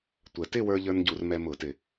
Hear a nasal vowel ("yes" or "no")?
no